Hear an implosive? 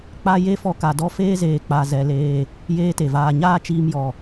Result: no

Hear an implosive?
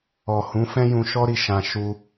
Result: no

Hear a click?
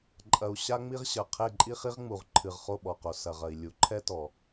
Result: yes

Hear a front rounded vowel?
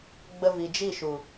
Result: no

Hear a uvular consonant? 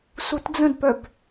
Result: no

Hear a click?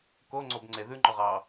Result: yes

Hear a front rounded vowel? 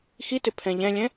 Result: no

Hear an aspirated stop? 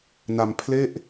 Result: yes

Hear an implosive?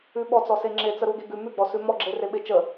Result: yes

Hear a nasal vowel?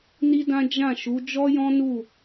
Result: yes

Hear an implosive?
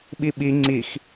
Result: yes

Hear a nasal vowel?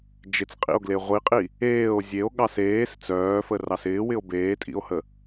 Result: no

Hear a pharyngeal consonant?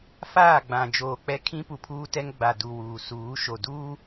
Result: no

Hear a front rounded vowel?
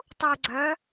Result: yes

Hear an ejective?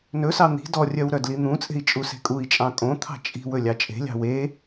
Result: yes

